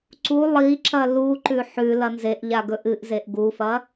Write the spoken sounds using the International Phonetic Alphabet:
ǀ u lˠ i ǁ ɐ l u ǃ ʉ ħ ʉ l ɐ n z e ʔ ʎ a ɡ ɵ ʔ ɨ ʔ z e ʔ ɡ u f ɐ

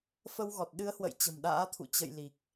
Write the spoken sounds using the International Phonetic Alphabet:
f ə˧ w ɣ ɔ˨˩ t̚ ɗ ɨ˨˦ ə̯ h w ə̰˧˨ j t͡ɕ ə̤˨˩ m ɗ a̰ː˧˥ t̪ʰ ṵ˧˨ t͡ɕ ə̰˧˨ j l i˨˩ k̚

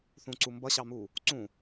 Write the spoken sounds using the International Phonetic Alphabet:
θ ũ ǀ u m b ʌ ɕ ɑ m uː | ǀ ũː

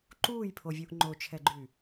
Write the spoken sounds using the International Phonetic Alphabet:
ǃ uː j pʰ o vʲ u ʔ ŋ͡ǃ o t͡ʃʰ ɛ ɡ͡ǃ y

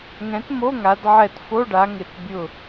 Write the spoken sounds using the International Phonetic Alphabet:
ŋ ɛ̃˩˥ t m o˧˥˧ ŋ a˩˧ d ʕ ɛ˧˩ t f o˧˥˧ ɖ a˩˧ ŋ ɪ˧˩˧ t bʲ ʊ˧˩

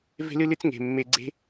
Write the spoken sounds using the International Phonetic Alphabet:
v e̤˦ l ɨ˦ l ɨ˦ t͡s ŋ e̤˨ mː e˧ ɡ͡ǀ e̤˦

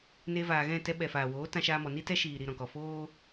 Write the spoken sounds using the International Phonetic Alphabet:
n e˧ v aː˨ ɣ ɛ̃˦˨ t ɛ˧ ɓ ɛ˨ f aː˨ w oː˨˦ t ã˧ ʃ aː˧ m ɔ˨ n i˦ t ɛ˧ ʃ iː˨ ɾ i˨ ɾ ɔ̃˨ k ɔ˨ f oː˦

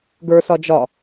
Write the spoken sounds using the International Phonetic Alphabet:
ɡ ə˞ s ɒ d͡ʒ ɒ

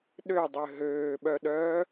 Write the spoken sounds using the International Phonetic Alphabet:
ɗ ø dˤ ø ɦ øː ɓ œ ɗ œː

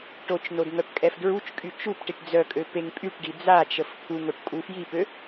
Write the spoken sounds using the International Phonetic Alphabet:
ʈ o t͡ʃ n o d ŋ œ p kʼ ɛ f d ɹ u t͡ʃ kʼ y t͡ʃ u p ʈ i ʈ d͡z œ kʼ ø p e ŋ pʼ y ʈ ɖ i d͡z a t͡ʃ ə f t̪ʰ u ŋ o ʈ kʼ u f j i p ø

